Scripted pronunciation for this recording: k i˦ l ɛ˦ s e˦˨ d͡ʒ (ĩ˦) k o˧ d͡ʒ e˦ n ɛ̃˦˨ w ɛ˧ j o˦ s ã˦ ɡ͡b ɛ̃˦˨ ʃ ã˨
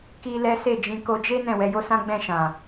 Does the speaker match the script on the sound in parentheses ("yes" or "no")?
no